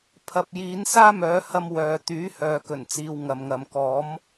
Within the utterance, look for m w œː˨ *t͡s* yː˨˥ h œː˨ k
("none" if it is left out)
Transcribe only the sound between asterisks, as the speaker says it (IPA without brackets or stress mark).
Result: t̪